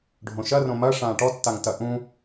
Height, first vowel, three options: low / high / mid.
mid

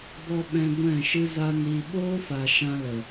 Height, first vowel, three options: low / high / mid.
mid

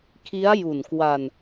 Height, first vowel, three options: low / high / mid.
high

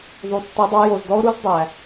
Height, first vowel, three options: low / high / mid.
high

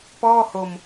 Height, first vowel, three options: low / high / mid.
mid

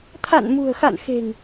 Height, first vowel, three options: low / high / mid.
low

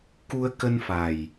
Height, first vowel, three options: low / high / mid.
high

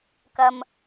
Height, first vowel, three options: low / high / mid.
low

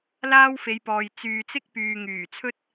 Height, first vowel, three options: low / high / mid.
low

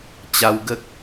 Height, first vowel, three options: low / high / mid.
low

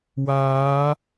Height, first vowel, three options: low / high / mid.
low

